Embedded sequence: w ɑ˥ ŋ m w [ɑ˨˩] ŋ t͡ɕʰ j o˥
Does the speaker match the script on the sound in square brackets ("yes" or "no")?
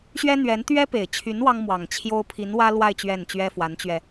yes